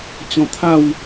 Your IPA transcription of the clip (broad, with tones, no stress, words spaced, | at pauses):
t͡ɕɔ̃˧t̪ʰa˥˧w